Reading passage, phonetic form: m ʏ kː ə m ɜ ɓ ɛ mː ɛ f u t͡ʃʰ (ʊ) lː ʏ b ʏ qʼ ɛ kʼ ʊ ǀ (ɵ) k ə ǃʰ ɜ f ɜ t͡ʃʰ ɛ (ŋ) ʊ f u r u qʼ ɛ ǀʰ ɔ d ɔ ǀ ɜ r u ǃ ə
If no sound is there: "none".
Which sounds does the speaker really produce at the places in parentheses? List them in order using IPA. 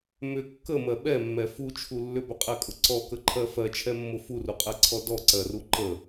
u, ɔ, mː

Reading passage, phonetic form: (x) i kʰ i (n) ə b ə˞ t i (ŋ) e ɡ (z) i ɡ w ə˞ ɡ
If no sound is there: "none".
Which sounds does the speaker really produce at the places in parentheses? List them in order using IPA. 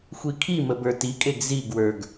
xʷ, m, kʼ, z

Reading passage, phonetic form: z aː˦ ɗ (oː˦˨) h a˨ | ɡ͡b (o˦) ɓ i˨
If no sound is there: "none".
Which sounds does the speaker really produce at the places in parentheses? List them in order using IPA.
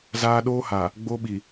oː˦, o˦

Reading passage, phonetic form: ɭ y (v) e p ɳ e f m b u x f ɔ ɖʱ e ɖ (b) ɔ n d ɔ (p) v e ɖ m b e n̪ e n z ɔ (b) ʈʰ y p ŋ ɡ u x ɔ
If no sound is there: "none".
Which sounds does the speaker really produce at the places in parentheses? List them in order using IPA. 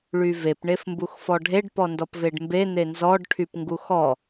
v, p, p, ɖ

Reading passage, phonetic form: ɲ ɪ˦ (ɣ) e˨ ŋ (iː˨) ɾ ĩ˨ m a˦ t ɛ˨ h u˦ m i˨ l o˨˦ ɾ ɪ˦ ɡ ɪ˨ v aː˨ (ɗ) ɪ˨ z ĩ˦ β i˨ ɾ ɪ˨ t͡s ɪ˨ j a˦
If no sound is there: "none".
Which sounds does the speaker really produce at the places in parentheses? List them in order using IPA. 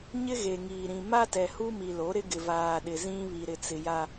ɣ, iː˨, ɗ

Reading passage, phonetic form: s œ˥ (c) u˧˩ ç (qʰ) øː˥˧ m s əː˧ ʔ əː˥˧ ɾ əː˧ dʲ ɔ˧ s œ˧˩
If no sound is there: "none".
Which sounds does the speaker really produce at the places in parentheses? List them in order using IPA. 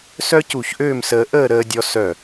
c, ʔ

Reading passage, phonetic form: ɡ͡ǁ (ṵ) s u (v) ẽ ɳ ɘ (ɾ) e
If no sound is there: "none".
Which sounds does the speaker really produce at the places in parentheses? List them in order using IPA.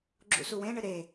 ṵ, w, ɾ

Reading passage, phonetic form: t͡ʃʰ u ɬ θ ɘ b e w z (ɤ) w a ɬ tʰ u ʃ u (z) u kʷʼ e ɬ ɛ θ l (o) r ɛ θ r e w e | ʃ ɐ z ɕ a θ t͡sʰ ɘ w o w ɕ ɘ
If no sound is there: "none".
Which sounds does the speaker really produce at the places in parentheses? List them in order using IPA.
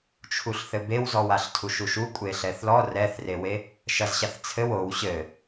ɔ, ʃ, ɔ

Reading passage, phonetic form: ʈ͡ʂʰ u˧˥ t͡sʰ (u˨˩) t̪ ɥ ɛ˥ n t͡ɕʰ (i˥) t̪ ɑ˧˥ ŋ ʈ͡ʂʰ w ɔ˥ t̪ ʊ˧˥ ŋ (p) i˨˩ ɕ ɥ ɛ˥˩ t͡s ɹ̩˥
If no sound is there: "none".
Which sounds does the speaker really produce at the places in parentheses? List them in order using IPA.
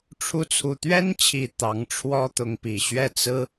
u˨˩, i˨˩, p

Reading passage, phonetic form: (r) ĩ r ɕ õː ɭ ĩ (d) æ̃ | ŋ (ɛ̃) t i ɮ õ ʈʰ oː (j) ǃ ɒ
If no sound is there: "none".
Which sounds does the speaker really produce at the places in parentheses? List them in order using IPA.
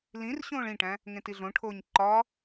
l, ʈ, ẽ, ɲ

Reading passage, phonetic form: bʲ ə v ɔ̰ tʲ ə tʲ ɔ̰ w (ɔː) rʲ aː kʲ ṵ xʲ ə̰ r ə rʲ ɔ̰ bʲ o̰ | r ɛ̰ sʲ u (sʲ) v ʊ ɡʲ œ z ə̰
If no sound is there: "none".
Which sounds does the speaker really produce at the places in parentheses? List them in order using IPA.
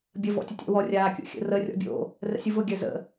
ɔ, none

